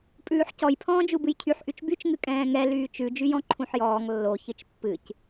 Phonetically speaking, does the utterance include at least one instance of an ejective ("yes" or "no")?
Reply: yes